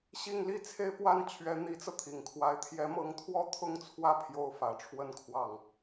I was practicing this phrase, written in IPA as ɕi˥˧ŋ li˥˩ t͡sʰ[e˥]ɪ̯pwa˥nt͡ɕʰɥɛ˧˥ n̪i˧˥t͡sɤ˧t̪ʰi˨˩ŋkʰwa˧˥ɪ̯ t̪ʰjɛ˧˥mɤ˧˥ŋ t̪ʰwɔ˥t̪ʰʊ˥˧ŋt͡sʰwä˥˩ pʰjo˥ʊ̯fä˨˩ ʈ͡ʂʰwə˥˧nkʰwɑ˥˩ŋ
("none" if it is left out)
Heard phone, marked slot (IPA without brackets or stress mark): e˥